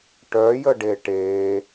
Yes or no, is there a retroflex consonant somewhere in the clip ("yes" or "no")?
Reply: yes